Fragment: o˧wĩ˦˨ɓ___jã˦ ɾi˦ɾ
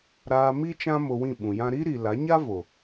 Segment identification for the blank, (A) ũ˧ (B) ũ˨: B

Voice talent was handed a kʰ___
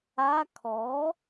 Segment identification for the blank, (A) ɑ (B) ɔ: B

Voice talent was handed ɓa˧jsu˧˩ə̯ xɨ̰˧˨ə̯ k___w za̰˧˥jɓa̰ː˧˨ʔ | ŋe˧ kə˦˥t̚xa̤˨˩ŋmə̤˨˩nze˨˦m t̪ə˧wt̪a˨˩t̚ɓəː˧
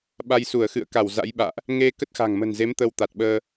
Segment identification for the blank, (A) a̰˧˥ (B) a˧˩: B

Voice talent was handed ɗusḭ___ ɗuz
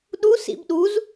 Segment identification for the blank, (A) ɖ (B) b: B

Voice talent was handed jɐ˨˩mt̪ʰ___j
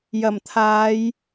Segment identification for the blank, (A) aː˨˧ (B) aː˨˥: A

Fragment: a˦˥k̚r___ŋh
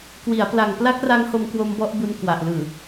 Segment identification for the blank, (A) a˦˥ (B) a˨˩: A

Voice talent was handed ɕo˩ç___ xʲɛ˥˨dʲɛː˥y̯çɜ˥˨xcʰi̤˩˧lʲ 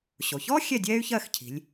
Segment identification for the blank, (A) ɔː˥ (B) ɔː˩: A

